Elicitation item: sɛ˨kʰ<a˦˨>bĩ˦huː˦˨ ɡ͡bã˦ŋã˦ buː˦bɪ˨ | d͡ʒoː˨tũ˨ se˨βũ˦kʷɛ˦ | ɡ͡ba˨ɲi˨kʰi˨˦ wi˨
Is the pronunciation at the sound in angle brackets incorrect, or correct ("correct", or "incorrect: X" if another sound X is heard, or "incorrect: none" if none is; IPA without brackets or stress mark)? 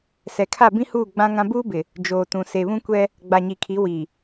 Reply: correct